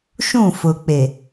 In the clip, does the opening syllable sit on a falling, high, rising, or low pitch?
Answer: falling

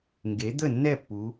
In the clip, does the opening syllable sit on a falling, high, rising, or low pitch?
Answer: rising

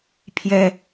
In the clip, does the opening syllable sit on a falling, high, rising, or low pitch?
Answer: high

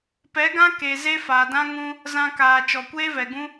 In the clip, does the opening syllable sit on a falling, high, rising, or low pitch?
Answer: rising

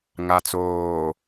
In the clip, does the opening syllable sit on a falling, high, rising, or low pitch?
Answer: low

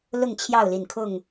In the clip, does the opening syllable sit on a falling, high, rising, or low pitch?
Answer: falling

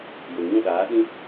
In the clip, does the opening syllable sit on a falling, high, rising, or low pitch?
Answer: low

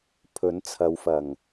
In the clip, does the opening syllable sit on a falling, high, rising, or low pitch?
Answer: rising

